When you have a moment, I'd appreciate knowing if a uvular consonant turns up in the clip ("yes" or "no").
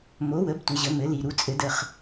yes